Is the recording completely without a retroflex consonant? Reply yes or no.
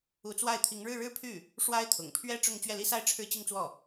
no